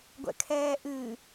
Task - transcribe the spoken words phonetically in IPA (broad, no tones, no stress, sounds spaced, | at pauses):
ɡʷ ɛ̰ kʰ ɛː ʔ ɨ